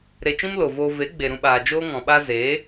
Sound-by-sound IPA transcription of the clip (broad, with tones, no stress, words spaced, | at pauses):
ɾe˧t͡ʃĩ˦mlo˨voː˧ ve˨˦ɡ͡be˨ɾũ˧ɓaː˨ d͡ʒoː˦ŋɔ̃˨ ɓa˧ ze˨˦